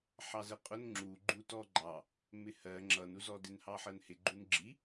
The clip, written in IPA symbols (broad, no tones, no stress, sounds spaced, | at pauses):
ħ ɑ z ə qʼ ʊ n ŋ͡ǁ u ɡ͡ǃ u t ɔ ɡ͡ǃ ɑ | m ɪ h ɜ ŋ͡ǁ ʌ n u z ɔ d ɪ n h ɑ ħ ɜ n h ɪ ɡ͡ǃ u n ɡ͡ǁ i